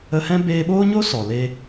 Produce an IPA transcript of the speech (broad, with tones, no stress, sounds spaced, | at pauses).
ə˧ h ɛ̃˦ b eː˧ ɓ oː˦ ɲ o˦ s ɔ˨ l e˧